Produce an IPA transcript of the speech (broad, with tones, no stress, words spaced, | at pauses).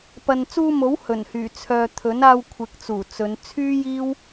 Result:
pɐ˨nt͡suː˧mo˨˥w hɵ˨˩nhyː˨˩ t͡sʰœː˨ t̪ʰɵ˨˥naː˧wkʷʰɪ˨˥k̚t͡suː˨˩ t͡sɵ˨˧n t͡sʰyː˥jiː˥w